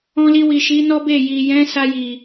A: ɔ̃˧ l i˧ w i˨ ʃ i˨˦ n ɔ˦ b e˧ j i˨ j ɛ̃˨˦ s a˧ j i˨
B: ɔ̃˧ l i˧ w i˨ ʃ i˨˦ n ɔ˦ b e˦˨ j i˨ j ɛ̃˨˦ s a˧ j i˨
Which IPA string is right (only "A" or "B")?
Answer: B